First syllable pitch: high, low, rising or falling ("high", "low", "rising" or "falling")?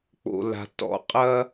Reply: low